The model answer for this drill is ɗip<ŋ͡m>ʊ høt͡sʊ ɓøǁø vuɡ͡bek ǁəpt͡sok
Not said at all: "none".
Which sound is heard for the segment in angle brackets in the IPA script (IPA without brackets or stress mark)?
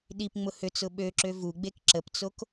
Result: ŋ͡m